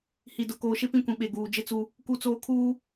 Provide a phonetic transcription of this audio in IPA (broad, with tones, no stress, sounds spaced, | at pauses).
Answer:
h i˨ d ʊ˨ k oː˨ ʃ e˦ p ĩ˦˨ kʷ ĩ˨ ɓ e˨ ɡ uː˨ d͡ʒ ɪ˦ t͡s u˦ | k u˦ t͡s oː˦ kʰ uː˦